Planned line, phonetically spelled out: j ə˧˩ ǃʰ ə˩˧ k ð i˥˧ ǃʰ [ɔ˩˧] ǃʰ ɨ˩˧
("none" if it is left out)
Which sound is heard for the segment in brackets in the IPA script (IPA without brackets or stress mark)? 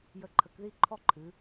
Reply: ɔ˥